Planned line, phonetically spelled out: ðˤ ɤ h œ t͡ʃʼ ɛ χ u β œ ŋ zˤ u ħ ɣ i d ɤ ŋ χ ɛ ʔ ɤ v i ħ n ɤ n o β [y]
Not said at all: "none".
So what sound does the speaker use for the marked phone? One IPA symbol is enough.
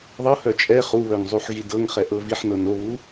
u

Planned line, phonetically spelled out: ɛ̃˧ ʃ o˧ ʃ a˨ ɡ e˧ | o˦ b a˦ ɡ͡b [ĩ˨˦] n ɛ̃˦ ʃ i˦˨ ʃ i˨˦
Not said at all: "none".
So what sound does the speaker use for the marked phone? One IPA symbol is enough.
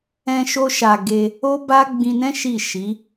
ĩ˧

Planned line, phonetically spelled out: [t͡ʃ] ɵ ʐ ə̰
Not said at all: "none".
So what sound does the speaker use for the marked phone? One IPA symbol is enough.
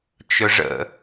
t͡ʃ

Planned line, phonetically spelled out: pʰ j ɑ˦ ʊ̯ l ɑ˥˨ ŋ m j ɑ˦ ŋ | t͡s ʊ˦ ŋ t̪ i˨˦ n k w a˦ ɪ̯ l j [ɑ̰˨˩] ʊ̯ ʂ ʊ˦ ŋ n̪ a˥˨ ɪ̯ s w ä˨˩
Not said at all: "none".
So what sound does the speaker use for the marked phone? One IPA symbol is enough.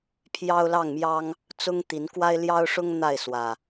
ɑ˦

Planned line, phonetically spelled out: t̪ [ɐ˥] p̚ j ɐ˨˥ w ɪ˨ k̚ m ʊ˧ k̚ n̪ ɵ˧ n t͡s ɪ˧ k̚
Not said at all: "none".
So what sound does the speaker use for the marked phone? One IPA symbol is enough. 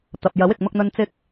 ɐ˨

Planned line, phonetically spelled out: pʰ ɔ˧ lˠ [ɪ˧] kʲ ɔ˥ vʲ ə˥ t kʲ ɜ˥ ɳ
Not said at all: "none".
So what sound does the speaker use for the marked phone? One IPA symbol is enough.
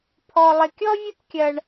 ɪ˧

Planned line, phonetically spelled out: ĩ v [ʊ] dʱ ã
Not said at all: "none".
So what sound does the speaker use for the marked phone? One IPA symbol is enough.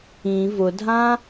ʊ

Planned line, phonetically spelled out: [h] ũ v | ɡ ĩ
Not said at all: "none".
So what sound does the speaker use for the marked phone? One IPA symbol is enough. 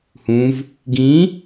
h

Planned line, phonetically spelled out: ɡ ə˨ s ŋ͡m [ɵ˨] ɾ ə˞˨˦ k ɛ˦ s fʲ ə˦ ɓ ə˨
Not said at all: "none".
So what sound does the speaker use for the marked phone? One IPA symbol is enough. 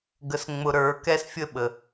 ʊ˨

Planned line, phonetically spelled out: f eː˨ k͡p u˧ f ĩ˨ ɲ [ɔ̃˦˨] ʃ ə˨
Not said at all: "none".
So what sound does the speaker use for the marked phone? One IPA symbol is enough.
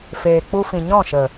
ɔ̃˦˨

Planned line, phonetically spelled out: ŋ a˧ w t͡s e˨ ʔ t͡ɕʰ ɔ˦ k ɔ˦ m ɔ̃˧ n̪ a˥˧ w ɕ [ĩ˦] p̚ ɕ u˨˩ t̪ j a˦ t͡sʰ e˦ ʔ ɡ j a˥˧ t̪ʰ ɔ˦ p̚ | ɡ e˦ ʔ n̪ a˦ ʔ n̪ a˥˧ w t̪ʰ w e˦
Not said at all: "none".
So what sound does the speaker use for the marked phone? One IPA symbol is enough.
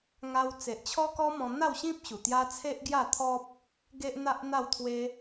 ĩ˦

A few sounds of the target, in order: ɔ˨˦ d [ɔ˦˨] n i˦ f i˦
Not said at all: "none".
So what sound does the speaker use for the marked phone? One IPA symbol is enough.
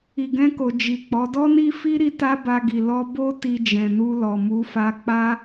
ɔ˦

